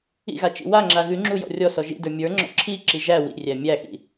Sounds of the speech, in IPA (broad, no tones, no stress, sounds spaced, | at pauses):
ḭ ɣ a t͡ʃ ḭ w a ŋ͡ǁ a ɣ ʉ ŋ͡ǁ u j ɔ̰ rʲ ɔ s ɔ ʒ ḭ d ə˞ mʲ ə˞ ŋ͡ǁ ɔ̰ ǁʰ i ǁ i ʒ æ w ḭ rʲ æ mʲ æ x ḭ